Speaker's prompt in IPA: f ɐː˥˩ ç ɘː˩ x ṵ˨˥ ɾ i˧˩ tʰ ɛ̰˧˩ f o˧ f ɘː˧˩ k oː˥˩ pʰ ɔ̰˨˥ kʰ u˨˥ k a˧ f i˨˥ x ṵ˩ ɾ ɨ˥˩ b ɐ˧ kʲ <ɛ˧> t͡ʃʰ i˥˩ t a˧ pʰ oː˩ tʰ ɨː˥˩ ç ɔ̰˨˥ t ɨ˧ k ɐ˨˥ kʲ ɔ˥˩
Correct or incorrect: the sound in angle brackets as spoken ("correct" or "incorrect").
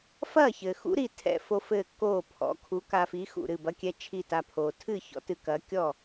correct